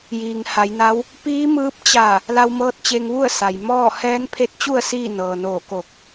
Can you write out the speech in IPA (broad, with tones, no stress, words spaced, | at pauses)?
jiː˩ŋha˩˧jna˧˥w | piː˧˥mɯː˧˥p̚ t͡ɕa˧˩ | la˧wmɤː˧˥t̚t͡ɕe˧ŋʋu˥˨ə̯ sa˩jmɔː˥˨ hɛː˧˥npʰe˧˥t̚t͡ɕu˥˨ə̯ siː˥˨ nɤː˩ noː˧˩ko˧˩k̚